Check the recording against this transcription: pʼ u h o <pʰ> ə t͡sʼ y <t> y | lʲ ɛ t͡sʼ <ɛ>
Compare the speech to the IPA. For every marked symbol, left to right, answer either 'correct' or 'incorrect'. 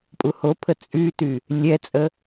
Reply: correct, correct, incorrect

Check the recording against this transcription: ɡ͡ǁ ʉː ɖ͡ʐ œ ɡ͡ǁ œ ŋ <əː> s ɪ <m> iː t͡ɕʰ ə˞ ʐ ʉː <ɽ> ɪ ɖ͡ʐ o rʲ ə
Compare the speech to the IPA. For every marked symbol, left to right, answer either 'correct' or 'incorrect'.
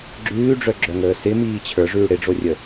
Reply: correct, correct, correct

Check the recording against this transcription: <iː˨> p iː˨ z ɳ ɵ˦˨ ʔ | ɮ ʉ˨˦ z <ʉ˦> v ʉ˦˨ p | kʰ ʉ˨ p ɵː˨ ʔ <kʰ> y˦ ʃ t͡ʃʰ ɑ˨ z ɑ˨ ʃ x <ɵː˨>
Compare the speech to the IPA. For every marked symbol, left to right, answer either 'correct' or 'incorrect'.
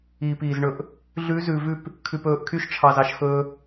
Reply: correct, incorrect, correct, incorrect

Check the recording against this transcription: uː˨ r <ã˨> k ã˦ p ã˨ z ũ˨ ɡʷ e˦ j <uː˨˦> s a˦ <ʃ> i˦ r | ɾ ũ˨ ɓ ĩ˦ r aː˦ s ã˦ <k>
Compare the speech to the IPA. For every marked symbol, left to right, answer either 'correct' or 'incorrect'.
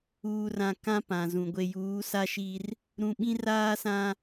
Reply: correct, correct, correct, incorrect

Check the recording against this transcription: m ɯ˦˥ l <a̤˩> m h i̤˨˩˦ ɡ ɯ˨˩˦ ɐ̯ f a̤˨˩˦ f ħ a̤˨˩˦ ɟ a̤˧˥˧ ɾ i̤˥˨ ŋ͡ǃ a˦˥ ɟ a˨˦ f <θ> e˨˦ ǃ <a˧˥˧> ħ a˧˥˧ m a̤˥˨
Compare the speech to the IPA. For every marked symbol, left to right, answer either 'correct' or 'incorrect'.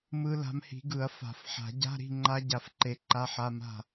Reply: incorrect, incorrect, correct

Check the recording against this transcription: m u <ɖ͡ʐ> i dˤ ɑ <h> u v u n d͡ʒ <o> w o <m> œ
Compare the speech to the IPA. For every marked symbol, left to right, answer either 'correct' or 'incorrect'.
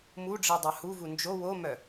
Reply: correct, correct, correct, correct

